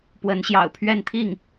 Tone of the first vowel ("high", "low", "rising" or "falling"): rising